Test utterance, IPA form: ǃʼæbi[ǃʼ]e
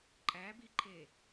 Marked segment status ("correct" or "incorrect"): incorrect